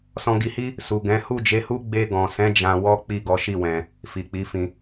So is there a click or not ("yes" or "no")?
no